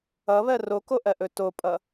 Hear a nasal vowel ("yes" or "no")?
no